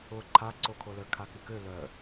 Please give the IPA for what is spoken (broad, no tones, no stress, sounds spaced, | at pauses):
ʊ ǃʰ a ǀ o kʰ o l ə kʰ a k ɪ k ø l œ